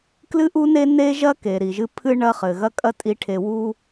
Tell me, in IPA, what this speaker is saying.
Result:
k l ɨ˦ ʔ u˦ n e˦ n e˦ ʒ ɐ˦ k e˨ ɾ i˨ ʒ ɨ˦ pʰ ɨ˦ ɳ ɐ˦ χ ɘ˨ ɣ ɐ˦ kʼ ɐ˦ tʼ i˨˦ ʈʰ e˨ w u˦

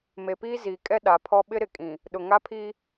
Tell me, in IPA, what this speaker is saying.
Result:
m e˨ p iː˦ z iː˨ kʼ ɛ˦ ɗ a˨ pʰ ɔ˦ ɓ ɪ˦ ɾ ɪ˨ kʼ ĩ˨ | ɗ ʊ˨ ŋ a˦ pʰ iː˦

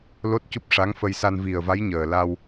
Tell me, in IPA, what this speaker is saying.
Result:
l o˦˥ t̚ c u˦˥ p̚ ʂ a˧˥ ŋ f ə˧ j s a˧ n v i˨˩ ə̯ v a˧˥ j ɲ əː˨˩ l a˧ w

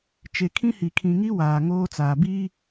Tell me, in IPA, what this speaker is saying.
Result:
t͡ʃ e˨ kʰ ĩ˦ h i˨ kʰ ĩ˨ ŋ i˦ w aː˨ ŋ oː˦ t͡s aː˨ b iː˦

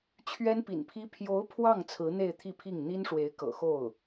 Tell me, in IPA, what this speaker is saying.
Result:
t͡ɕʰ ɥ ɛ˥ n p ḭ˨˩ n pʰ i˥ pʰ j o˧˥ ʊ̯ pʰ w ɑ˥˩ ŋ t͡sʰ ɹ̩˧˥ n̪ e˥˧ ɪ̯ t̪ʰ i˥˧ pʰ i˥˩ ŋ n̪ i˥ n ʂ w e˧˥ ɪ̯ k ɤ̰˨˩ x o˥˩ ʊ̯

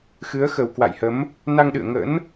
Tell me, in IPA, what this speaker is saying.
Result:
x ɨ˨˦ ə̯ x ə˨˩ w k w a̰˧˨ j h ə˨˦ m | n a˧ ŋ ɗ ɨ̰˧˨ ə̯ ŋ ə̰˧˥ n

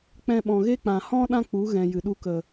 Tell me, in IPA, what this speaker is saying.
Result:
k͡p ɛ̃˧ ɓ ɔ̃˨ ɣ e˦ k͡p ã˨ h ɔ̃˦ ɗ ã˧ k͡p u˨˦ ɣ ɛ̃˨ j ɨ˨ ɗ u˧ k ə˨

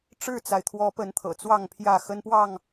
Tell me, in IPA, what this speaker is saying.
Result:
ʈ͡ʂ ɻ̩˥˨ t͡s a˩ ɪ̯ t̪ʰ w ɔ˨˦ p ə˨˦ n t̪ʰ ɤ̰˨˩ t͡s w ɑ˥˨ ŋ pʰ j ä˥˨ x ə˦ n p w ɑ˥˨ ŋ

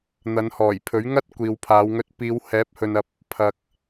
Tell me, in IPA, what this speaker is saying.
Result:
n̪ ɐ˨˧ n h ɔː˨˩ j pʰ ɵ˨˥ ɥ ŋ ɐ˥ t̚ kʷ iː˨ w pʰ aː˨˧ w ŋ ɵ˧ t̚ p iː˨˧ w h ɛː˨˥ p̚ h ɵ˨ n ɐ˨ p̚ | pʰ ɐ˨ k̚

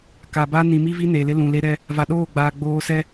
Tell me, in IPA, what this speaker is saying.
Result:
k a˨ b a˦ n ĩ˨ m i˦ v i˦ n e˨ l ɪ˦ l ũ˨ l e˦ ɾ ɛ˦ | v a˨ ɗ oː˦˨ ɡ͡b aː˨ ɡ͡b oː˦ s ɛ˦

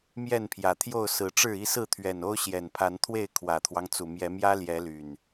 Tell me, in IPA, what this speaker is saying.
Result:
m j ɛ˥˨ n pʰ j ä˨˩ t̪ʰ j o˥˨ ʊ̯ s ɹ̩˨˦ ʈ͡ʂ ɻ̩˥˨ i˥˨ s ɹ̩˥˨ t̪ʰ ɥ ɛ˨˩ n o˦ ʊ̯ ɕ j ɛ˨˩ n pʰ a˨˦ n t̪ʰ w e˥˨ ɪ̯ kʰ w ä˨˩ t̪ʰ w ɑ˦ ŋ t͡s u˨˩ m j ɛ˨˦ m j ä˦ l j ɛ˨˦ l y˨˩ n

